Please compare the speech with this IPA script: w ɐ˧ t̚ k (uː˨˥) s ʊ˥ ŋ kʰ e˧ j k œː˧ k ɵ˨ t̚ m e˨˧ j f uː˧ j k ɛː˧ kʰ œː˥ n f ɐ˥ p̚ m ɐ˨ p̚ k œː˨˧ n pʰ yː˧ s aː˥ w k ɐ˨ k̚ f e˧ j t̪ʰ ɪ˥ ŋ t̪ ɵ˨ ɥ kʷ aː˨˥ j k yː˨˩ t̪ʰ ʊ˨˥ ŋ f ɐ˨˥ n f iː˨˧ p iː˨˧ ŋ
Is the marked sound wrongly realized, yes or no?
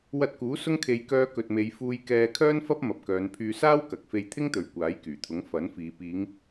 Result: no